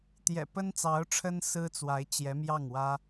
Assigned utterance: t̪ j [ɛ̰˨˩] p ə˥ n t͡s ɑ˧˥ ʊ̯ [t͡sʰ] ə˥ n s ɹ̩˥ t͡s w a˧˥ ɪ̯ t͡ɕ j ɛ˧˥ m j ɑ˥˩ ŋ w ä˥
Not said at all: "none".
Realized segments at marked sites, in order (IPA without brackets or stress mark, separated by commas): ɛ̰˨˩, ʈ͡ʂʰ